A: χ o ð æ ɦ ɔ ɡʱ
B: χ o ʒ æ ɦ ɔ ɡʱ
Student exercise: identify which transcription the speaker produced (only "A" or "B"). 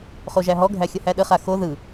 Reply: B